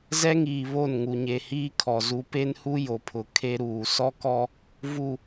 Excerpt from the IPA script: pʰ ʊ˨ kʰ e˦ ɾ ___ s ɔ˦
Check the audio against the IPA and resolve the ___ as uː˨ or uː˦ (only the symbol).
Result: uː˨